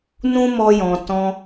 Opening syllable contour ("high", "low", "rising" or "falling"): high